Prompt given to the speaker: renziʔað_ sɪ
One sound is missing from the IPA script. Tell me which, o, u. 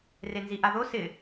o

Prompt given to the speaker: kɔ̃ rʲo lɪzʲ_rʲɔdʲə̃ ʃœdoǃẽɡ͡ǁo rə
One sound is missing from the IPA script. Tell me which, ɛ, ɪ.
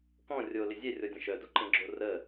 ɛ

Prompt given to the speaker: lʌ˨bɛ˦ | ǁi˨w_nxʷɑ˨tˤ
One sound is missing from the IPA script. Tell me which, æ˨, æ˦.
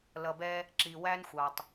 æ˦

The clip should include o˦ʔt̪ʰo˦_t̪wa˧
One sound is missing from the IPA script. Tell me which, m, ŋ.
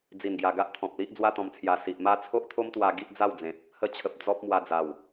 m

